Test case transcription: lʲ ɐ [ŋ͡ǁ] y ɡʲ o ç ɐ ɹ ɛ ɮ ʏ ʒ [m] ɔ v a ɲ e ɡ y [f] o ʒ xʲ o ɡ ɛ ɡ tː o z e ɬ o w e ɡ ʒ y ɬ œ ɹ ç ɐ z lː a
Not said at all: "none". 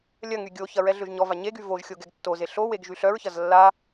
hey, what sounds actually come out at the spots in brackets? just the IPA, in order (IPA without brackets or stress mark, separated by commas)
ŋ, ɲ, v